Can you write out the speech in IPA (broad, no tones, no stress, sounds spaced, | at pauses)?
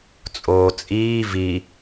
t͡sʼ oː t͡sʼ iː v i